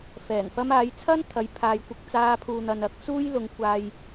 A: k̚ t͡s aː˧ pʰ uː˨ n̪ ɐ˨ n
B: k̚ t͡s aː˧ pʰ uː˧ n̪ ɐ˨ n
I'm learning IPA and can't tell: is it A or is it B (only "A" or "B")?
A